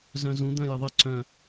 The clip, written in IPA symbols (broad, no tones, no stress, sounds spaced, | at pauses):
z œ̃ z ũ d̪ œ̃ j ɪ ðˤ ɪ ǀ œ̃